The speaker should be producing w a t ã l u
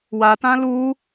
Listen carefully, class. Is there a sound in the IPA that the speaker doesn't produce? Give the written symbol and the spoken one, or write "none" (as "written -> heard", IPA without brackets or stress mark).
none